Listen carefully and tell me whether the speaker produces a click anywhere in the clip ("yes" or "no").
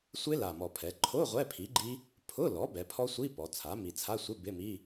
yes